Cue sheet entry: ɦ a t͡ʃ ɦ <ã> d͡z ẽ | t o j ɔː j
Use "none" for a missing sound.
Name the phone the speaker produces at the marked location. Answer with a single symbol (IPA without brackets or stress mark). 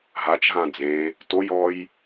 ã